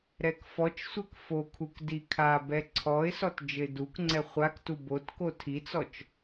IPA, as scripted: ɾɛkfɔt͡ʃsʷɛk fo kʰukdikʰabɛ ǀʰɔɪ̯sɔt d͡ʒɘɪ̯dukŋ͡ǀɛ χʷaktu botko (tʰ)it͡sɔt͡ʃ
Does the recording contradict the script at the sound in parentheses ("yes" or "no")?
no